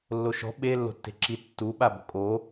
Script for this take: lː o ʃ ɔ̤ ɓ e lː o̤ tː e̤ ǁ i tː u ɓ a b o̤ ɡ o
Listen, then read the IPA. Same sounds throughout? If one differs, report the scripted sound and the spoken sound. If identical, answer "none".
ɡ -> kʼ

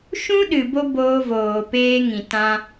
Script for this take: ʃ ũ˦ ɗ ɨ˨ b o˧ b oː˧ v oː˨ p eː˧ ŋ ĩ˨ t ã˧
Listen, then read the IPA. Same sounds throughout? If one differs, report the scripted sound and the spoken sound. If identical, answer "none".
none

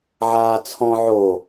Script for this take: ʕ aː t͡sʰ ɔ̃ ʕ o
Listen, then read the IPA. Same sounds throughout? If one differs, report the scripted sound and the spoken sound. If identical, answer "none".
none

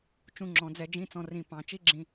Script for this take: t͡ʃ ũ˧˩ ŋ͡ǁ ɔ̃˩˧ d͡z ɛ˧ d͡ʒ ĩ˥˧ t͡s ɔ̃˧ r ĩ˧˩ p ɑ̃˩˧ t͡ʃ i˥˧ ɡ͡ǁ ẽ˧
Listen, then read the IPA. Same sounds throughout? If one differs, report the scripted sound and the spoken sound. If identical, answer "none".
ẽ˧ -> ĩ˧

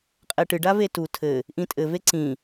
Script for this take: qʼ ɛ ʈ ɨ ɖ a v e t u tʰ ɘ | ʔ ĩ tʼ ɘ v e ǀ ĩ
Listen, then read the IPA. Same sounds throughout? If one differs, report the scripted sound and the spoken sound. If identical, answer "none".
none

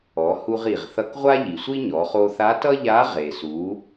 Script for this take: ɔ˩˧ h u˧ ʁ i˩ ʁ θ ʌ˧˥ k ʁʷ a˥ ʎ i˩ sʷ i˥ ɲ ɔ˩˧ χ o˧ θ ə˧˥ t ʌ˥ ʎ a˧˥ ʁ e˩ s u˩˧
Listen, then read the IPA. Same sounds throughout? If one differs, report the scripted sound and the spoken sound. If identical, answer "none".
ə˧˥ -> a˧˥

